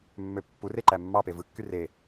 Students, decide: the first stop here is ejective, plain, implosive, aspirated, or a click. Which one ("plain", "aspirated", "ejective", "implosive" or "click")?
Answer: plain